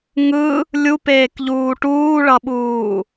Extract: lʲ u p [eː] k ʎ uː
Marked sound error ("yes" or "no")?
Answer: no